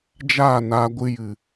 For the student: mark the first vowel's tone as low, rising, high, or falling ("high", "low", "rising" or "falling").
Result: falling